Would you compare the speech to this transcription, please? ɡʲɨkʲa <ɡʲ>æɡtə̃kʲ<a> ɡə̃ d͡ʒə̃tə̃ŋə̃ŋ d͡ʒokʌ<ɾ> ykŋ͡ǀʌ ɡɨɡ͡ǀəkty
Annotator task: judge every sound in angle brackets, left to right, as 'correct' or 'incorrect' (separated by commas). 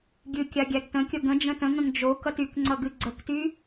correct, incorrect, incorrect